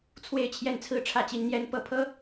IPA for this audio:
t͡sʰ w e˥˧ ɪ̯ t͡ɕʰ j ɛ˥˧ n t͡sʰ ɹ̩˥˧ ʈ͡ʂʰ ä˥˩ t͡ɕ i˥ n n̪ j ɛ˥ n p ɤ˥˩ pʰ ɤ˥

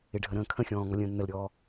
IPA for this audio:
ɪ ɖʱ ə ɾ ə̃ː kʰ ə̃ xʲ ɔ̃ː ŋ ɔ lʲ ə̃ː nː ə l ɾʲ ɔː

